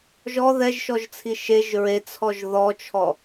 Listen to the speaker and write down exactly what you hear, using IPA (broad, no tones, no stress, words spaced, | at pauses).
ʒɔ ðɛʒʃɔʒt͡sʰi ʃeʒ ɹet͡sʰɔʒ ðɔt͡ʃʰɔ